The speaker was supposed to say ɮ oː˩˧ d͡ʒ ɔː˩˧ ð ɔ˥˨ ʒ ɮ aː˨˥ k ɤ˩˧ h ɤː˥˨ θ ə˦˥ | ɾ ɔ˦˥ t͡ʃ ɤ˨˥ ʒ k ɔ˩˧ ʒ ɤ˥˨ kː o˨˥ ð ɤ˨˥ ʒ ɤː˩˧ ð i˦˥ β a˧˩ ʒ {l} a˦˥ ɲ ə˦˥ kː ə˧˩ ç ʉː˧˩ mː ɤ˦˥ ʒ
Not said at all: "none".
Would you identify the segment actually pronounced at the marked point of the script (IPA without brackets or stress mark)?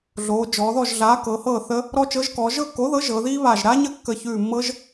ɾ